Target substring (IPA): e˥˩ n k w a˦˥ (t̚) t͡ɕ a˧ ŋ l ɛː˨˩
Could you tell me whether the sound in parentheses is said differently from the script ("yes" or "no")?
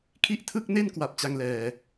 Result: yes